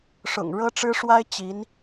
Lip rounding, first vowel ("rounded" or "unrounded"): rounded